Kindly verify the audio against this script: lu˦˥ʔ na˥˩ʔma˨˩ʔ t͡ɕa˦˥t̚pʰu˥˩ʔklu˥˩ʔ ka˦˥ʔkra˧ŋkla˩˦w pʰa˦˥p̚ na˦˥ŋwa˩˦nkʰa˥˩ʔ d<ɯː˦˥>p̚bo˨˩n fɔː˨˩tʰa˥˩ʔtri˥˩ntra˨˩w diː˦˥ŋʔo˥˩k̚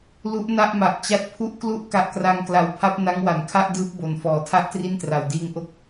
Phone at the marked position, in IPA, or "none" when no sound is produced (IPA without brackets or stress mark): ɯː˦˥